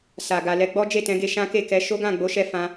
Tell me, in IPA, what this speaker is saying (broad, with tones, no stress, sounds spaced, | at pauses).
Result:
s a˨ ɡ a˨ l ɛ˧ ɡ͡b ɔ˦ d͡ʒ e˦˨ t ɛ̃˨˦ ɡ e˧ ʃ ã˦ k e˦˨ k ɛ˧ ʃ o˦ ɡ ã˦˨ ɡ͡b o˨˦ ʃ ɛ˧ f ã˧